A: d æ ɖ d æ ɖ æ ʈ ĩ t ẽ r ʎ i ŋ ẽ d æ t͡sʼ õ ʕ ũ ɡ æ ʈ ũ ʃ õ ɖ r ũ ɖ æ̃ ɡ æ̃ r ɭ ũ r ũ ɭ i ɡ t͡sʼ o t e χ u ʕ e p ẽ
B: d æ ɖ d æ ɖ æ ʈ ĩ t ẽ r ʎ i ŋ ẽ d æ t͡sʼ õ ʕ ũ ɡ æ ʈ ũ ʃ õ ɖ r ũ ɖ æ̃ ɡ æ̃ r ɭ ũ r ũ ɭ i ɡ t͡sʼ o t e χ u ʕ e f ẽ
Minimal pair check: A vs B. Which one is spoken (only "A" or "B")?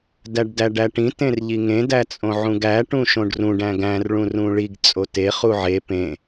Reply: A